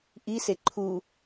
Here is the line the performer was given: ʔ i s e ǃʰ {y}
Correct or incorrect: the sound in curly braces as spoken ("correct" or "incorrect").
incorrect